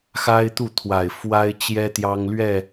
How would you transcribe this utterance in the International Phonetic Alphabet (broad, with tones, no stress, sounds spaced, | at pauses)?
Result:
x a˦ ɪ̯ t̪ u˥˨ t̪ʰ w a˨˩ ɪ̯ f w a˦ ɪ̯ t͡ɕ j ɛ˦ t̪ j ɑ˦ ŋ l ɥ ɛ˥˨